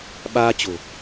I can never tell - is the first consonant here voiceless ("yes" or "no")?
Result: no